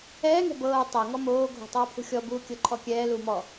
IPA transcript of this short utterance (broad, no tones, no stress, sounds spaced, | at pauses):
ɛː ŋ ɛ̤ b ɤː tˤ ɤ ŋ ɔ m oː ɡʱ ɔ̤ tˤ ɤː pʰ ṳ xʲ ɔ b uː kʲ ɤ ǃʰ ɔ kʲ ɛː l uː m ɔ